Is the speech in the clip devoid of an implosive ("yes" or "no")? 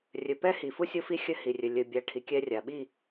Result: no